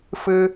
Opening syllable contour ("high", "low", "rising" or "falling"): high